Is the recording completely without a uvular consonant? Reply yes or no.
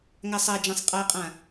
no